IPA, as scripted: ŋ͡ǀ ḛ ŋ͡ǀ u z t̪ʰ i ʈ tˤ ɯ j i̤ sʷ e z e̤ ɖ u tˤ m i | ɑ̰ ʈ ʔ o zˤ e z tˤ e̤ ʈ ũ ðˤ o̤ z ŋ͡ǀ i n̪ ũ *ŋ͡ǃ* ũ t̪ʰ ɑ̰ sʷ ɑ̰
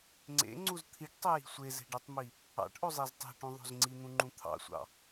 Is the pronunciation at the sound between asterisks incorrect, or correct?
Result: correct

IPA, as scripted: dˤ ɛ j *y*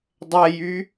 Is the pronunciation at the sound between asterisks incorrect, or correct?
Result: correct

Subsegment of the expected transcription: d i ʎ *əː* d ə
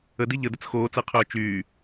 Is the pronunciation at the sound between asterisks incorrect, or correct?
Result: incorrect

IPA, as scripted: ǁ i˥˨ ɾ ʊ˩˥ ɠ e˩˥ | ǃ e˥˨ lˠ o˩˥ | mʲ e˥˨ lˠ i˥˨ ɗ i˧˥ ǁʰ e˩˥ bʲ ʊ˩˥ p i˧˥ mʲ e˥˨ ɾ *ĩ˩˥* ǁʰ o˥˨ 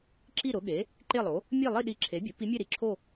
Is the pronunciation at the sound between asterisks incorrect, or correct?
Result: incorrect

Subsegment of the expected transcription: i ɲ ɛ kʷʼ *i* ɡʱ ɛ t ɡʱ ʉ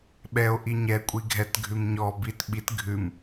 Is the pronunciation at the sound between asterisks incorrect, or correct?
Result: correct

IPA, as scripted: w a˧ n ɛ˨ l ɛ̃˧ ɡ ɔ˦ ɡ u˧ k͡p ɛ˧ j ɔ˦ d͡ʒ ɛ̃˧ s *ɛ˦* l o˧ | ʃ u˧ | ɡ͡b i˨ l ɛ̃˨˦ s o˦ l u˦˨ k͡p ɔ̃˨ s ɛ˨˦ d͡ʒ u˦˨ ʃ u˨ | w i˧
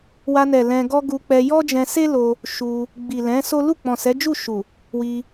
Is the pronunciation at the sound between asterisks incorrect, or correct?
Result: incorrect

